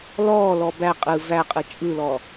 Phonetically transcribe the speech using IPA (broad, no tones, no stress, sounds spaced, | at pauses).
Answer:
l ɔː l ɔ b æ qʼ ɯ v æ qʼ ɯ t͡ʃʼ ɯ l ɔ